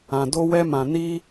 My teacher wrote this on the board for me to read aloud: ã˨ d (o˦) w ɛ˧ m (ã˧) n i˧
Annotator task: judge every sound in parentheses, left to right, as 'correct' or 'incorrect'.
incorrect: o˧, incorrect: ã˨

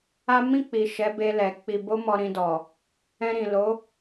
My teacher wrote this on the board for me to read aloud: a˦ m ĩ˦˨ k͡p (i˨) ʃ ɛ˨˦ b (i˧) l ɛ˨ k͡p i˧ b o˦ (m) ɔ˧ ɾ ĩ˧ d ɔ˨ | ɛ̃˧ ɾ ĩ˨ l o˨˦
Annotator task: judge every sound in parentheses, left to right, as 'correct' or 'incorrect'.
correct, incorrect: e˧, correct

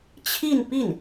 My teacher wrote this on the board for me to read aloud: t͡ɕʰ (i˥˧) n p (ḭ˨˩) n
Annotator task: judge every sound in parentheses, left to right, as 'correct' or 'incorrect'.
correct, incorrect: i˥˩

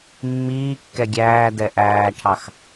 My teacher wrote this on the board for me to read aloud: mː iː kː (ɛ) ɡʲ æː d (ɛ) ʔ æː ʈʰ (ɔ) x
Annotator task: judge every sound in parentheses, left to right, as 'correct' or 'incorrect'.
correct, correct, incorrect: ɑ

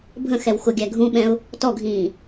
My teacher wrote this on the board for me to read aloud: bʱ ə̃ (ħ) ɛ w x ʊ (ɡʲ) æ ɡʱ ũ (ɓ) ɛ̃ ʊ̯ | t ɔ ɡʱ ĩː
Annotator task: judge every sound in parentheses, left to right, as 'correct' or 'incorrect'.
incorrect: x, correct, correct

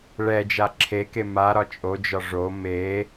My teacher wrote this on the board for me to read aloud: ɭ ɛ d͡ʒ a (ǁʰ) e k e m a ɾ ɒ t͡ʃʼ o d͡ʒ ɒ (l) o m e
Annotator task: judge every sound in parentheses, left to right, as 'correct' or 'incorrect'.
correct, incorrect: ʐ

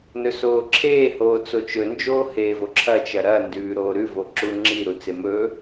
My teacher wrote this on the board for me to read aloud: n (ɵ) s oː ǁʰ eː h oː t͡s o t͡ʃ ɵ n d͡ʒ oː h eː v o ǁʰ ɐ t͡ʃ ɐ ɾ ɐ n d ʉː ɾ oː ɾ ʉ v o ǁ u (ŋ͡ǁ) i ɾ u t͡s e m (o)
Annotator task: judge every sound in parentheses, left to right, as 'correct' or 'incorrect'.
correct, correct, incorrect: ɵ

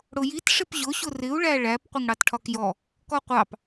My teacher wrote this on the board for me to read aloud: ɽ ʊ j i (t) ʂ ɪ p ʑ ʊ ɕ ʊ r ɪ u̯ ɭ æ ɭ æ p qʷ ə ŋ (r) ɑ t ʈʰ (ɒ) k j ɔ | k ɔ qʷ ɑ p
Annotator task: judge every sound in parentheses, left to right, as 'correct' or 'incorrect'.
correct, incorrect: ɽ, correct

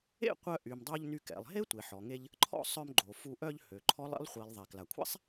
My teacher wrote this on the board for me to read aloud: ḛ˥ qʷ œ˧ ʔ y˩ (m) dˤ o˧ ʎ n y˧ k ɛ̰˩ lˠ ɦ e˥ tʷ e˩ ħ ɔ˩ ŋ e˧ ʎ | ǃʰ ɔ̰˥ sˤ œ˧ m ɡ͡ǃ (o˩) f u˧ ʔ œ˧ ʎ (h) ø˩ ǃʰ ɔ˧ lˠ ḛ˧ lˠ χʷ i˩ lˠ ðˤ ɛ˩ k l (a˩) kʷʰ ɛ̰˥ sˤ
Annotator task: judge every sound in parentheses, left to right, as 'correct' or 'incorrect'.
correct, correct, correct, correct

